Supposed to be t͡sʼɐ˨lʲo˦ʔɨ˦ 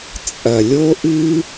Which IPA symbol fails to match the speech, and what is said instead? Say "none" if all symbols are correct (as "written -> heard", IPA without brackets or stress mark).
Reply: none